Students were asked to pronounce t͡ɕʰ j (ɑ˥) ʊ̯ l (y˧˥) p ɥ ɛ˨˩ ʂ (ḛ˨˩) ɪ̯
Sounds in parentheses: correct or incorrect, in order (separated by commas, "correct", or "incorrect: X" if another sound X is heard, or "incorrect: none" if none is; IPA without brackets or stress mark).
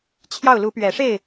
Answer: incorrect: ɑ˥˩, incorrect: u˧˥, incorrect: e˥˩